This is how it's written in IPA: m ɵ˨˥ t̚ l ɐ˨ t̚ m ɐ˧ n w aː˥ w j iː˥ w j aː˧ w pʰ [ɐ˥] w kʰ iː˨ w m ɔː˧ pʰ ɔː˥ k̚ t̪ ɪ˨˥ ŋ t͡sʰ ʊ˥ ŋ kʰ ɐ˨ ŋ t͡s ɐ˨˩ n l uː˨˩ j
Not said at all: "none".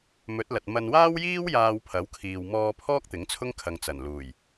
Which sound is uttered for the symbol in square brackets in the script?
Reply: ɐ˨˥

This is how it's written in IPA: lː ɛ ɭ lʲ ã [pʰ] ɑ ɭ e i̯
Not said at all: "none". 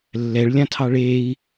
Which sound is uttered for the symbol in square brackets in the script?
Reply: tʰ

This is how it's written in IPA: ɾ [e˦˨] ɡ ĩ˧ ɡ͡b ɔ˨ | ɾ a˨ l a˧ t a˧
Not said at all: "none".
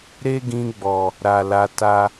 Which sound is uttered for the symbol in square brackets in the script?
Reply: e˦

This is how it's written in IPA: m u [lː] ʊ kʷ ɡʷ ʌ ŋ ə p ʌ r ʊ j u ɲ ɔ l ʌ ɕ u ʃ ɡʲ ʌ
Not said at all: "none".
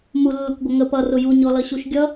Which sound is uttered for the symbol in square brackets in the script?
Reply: lː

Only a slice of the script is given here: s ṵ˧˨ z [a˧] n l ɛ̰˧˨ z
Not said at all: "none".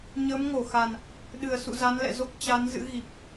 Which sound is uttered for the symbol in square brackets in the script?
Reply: a˨˦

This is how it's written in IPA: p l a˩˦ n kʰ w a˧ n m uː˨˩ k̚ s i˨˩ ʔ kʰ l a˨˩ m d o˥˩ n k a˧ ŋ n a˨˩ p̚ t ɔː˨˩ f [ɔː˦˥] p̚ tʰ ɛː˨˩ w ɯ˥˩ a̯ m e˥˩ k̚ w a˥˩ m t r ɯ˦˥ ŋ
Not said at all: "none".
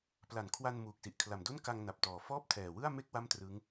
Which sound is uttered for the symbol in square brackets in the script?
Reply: ɔː˥˩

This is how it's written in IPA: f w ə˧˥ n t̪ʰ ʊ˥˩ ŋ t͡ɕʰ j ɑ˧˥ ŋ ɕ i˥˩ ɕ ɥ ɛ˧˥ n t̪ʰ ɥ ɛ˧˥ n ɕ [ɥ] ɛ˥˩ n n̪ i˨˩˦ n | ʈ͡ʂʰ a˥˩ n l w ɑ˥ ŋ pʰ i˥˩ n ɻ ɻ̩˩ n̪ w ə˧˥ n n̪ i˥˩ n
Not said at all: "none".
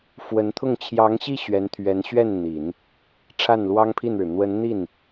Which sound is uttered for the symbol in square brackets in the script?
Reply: ɥ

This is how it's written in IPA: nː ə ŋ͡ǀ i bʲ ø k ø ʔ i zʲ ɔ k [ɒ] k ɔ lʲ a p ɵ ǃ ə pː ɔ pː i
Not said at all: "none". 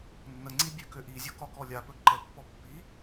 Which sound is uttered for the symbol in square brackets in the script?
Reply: ɒ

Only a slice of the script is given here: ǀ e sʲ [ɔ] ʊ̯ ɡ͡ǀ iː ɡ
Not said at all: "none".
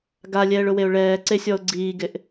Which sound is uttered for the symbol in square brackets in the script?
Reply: ɔ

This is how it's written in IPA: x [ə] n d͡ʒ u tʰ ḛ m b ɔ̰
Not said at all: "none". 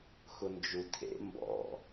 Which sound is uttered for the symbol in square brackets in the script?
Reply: ʊ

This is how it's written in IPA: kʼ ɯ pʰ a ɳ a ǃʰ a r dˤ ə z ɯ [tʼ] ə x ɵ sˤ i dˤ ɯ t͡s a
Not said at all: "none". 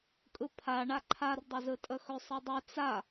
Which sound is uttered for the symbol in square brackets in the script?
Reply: tʼ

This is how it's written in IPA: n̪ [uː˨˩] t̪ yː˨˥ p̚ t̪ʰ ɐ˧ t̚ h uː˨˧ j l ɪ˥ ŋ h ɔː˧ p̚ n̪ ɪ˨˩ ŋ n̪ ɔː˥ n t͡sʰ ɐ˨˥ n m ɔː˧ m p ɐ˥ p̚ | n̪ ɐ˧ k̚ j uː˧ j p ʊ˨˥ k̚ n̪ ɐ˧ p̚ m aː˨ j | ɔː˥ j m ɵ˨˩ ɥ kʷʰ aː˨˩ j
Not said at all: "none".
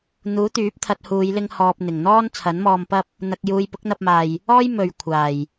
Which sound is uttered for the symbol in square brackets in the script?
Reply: uː˨˥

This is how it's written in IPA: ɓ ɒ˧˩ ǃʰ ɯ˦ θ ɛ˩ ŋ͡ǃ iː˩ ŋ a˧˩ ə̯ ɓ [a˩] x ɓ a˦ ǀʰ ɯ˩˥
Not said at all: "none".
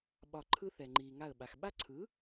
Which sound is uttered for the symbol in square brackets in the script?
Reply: a˩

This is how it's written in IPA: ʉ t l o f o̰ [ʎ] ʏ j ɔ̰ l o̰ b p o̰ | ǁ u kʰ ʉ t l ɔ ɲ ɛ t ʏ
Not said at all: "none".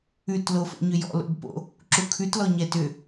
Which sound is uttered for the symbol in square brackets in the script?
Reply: ɲ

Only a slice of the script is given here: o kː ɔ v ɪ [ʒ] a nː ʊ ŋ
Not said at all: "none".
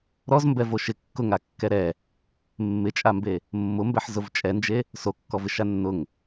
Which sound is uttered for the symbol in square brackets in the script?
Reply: ʃ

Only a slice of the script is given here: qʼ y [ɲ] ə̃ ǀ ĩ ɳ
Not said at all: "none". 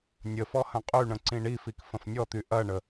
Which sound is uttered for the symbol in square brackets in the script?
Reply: ɳ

